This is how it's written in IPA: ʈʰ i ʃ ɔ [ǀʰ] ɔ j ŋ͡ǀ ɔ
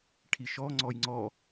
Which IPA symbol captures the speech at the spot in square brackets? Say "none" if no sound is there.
ŋ͡ǀ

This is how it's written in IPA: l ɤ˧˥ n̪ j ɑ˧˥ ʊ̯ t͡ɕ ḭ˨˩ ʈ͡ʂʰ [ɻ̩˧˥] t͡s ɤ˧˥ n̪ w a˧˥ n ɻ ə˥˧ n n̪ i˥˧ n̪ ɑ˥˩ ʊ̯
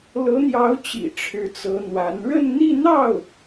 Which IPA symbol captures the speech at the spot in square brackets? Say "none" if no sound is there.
ɻ̩˧˥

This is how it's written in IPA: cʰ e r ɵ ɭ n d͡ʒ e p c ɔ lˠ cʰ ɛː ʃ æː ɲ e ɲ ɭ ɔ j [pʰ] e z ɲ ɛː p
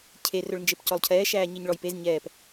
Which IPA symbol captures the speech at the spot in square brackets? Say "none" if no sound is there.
p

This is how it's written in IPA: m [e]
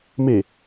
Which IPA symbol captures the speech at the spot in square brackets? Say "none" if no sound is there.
e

